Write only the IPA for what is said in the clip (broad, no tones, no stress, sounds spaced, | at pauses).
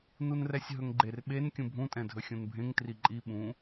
n u n r ɛ sʲ ɦ ɵ ŋ ɡ͡ǃ e r ɓ e n kʲ ũ bʱ ũ tʼ ɛ̃ dʱ ɵ xʲ ũ n bʱ ẽ ŋ t r i ǃʼ i ɓ ũ